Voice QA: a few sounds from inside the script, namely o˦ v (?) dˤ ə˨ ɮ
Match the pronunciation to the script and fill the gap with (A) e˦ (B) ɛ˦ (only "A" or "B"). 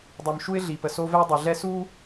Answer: B